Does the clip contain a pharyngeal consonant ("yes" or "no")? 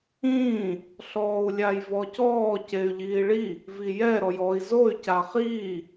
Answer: no